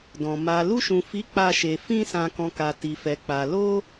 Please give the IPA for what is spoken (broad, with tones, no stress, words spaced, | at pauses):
dɔ̃˨ ma˨ lu˧ʃũ˨fi˨˦ k͡pa˧ʃe˨ fĩ˧sã˨kɔ̃˨ ka˨ ti˨fɛ˨k͡pa˨ lo˧